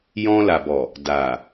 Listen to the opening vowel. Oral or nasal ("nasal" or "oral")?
nasal